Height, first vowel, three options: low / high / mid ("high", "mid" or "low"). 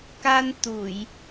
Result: low